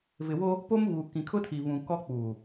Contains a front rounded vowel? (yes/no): no